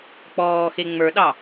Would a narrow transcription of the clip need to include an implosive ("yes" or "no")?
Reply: yes